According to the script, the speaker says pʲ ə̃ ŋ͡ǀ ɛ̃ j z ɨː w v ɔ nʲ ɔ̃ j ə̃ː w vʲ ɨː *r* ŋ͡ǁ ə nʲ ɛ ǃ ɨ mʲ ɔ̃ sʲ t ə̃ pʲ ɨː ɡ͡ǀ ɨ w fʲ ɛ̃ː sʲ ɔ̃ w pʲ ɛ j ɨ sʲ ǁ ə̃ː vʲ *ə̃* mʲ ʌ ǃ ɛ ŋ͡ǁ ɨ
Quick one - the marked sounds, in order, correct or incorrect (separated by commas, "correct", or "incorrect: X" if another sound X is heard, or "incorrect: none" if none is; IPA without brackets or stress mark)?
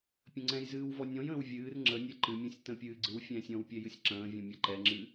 correct, incorrect: ɔ̃